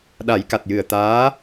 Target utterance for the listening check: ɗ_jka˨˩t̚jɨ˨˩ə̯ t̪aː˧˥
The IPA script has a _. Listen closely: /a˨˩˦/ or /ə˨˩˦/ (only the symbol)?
a˨˩˦